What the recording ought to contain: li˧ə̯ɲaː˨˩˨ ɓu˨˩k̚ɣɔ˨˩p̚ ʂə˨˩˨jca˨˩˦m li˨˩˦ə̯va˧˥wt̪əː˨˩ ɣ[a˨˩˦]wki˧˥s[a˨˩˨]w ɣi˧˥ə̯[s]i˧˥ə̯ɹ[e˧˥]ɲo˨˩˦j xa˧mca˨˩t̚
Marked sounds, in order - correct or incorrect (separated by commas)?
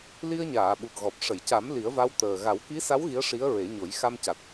correct, incorrect, incorrect, incorrect